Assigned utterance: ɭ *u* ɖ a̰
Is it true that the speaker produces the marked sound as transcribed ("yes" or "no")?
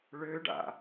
no